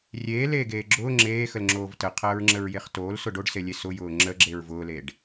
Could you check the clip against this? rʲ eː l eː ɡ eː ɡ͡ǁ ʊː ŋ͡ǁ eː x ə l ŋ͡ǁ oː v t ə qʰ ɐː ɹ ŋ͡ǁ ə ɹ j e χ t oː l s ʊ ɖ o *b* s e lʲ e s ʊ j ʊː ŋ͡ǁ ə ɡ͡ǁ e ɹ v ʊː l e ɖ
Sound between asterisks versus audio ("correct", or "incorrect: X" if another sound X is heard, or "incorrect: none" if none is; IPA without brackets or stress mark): incorrect: ɖ